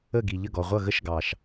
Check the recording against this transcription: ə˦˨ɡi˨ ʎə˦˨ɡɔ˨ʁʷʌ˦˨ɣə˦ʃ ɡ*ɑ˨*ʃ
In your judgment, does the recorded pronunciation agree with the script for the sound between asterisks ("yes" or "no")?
yes